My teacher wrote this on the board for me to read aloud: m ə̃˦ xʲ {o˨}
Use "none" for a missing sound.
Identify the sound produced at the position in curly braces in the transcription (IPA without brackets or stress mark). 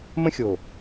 o˨